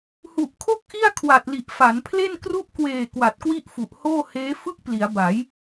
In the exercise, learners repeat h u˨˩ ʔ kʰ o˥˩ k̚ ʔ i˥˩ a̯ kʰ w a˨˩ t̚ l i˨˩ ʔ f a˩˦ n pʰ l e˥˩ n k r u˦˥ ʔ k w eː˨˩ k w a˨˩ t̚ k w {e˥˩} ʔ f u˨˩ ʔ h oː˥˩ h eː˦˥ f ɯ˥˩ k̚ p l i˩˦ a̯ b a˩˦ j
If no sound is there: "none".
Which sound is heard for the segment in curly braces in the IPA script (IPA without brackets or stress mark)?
i˥˩